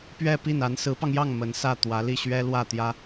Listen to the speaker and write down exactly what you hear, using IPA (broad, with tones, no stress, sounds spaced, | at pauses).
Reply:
p ɥ ɛ˥˧ p i˥˩ n a˧˥ n s ɹ̩˧˥ p ɑ˧ ŋ j ɑ˥˩ ŋ m ə˧˥ n s ä˥˩ t̪ w ä˧˥ l i˥˩ ɕ ɥ ɛ˥ l w ä˥˩ t̪ j ä˥